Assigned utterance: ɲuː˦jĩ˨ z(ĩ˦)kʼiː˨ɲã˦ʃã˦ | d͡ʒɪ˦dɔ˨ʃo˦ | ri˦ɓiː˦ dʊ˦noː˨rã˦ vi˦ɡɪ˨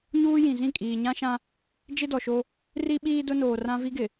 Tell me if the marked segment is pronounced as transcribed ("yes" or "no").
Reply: no